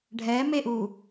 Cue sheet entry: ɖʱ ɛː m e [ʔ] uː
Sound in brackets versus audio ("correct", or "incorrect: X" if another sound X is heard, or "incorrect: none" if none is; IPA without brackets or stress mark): correct